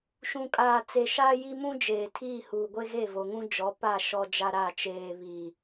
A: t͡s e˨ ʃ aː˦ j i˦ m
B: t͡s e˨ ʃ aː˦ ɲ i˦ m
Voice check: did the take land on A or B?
A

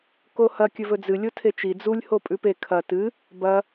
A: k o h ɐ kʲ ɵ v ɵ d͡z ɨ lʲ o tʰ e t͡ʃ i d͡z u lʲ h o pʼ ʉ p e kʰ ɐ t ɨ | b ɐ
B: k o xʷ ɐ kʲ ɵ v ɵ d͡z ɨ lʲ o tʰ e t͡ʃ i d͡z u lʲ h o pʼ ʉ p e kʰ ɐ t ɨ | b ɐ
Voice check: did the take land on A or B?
A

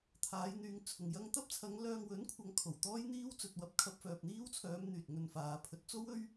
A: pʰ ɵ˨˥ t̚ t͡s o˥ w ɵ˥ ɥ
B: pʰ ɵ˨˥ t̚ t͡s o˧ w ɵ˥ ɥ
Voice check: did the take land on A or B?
A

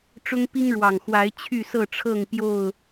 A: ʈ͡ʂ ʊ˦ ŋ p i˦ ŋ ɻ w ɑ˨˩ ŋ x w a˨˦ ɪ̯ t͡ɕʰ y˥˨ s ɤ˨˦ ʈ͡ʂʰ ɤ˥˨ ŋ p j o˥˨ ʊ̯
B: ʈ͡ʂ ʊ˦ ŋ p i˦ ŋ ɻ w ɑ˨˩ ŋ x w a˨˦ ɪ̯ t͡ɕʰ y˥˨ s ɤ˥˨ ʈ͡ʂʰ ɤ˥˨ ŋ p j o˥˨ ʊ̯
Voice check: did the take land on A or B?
B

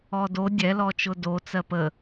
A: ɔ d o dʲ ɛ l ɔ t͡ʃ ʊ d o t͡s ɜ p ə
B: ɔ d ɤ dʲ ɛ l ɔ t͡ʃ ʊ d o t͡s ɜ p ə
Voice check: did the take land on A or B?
A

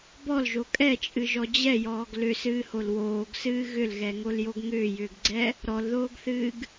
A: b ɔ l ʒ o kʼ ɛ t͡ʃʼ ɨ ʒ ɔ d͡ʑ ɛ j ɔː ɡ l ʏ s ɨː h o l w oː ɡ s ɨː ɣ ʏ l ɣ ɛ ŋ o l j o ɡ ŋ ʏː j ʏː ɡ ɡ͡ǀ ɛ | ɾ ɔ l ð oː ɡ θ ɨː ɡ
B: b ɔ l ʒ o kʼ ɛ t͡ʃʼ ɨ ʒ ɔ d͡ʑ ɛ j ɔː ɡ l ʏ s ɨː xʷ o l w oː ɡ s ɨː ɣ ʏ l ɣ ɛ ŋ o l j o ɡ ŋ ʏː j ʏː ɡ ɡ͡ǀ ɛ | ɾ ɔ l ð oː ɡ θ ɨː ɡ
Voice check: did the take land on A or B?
A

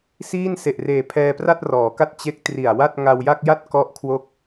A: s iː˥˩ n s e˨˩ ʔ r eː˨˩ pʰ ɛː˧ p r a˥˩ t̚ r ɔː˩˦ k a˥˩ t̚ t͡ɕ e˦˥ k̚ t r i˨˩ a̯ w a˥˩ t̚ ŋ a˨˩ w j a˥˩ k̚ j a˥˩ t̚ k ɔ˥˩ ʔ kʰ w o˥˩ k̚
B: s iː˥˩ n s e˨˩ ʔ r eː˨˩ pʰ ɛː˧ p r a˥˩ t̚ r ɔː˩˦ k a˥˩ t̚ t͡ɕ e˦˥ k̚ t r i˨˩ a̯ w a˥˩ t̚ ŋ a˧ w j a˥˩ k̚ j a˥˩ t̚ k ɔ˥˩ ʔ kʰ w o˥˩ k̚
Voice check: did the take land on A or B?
B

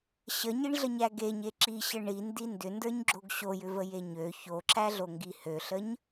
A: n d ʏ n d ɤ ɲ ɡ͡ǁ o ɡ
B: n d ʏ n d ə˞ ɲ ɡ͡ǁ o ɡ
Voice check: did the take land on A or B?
B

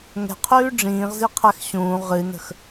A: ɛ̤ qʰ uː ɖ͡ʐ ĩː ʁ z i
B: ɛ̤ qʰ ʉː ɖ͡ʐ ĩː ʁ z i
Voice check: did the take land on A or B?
B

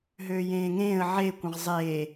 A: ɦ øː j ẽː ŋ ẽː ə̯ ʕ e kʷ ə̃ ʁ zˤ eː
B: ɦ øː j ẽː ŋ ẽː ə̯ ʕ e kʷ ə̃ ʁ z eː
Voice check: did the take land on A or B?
A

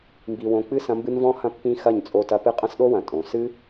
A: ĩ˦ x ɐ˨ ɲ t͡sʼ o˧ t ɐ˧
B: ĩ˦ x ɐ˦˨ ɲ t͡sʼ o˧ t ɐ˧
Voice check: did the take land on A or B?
B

